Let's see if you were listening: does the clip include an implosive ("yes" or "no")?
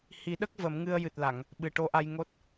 yes